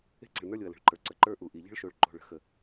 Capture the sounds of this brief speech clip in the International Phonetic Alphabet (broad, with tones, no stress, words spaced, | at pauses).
e̤˦ǀə̤˨ɭnə˞˦lʲo˨ɐ̯ lə̤˨ɭǃə˞˨ ǀə˨ǃə˞˦ ʔu˨ʔi˨ ʎə̤˦ɭʃo˨ɭ ǃo̤˨ɭə̤˦xə˨